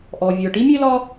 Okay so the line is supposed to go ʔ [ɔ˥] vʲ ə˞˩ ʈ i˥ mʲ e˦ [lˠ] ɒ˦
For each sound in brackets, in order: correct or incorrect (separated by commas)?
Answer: incorrect, incorrect